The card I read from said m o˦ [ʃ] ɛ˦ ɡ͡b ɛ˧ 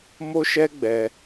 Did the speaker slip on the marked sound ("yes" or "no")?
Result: no